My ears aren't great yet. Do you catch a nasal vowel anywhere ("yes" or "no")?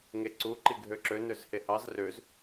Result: no